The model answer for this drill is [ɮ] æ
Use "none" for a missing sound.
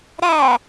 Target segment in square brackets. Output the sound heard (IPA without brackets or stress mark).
ɾ